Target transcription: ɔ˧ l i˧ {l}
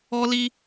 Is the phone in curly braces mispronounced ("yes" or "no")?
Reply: yes